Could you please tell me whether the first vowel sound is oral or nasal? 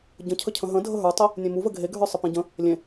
nasal